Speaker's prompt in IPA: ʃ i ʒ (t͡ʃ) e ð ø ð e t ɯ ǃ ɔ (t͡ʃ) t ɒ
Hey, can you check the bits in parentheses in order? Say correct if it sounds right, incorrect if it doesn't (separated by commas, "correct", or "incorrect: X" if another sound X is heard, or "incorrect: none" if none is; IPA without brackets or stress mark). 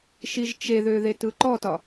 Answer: correct, incorrect: none